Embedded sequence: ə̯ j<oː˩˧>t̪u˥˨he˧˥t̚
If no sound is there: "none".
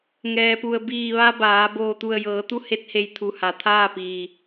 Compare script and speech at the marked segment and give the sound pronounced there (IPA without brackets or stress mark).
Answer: ɤː˩˧